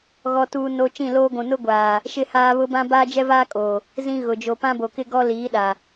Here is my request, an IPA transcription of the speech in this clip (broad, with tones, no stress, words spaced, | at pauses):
ɣɔ˨tuː˨no˨ t͡ʃĩ˦˨loː˦ɡʷũ˨ nʊ˦ ɡʷaː˨ | ʃɪ˦haː˦ βʊ˦bã˦ baː˦d͡ʒɛ˦vaː˦kʼoː˨ | zĩ˦ɣʊ˨ d͡ʒo˨pã˦bo˨kɪ˦ ɡɔ˦liː˨˦ɗa˨